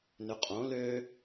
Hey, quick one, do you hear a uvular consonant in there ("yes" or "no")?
yes